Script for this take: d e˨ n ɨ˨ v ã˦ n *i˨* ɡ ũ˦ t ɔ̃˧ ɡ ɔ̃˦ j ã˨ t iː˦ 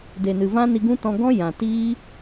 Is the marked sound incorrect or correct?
incorrect